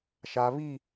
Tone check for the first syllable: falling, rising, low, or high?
low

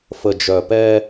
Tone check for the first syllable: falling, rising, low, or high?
low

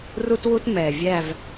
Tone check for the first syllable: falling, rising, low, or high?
high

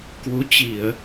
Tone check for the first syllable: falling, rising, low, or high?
rising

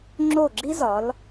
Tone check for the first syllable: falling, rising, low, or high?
falling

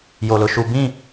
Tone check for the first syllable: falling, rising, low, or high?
low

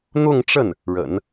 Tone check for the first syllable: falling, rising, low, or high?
falling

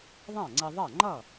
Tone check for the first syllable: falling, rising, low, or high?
falling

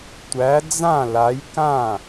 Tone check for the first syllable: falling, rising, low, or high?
rising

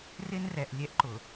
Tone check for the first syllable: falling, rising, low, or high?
high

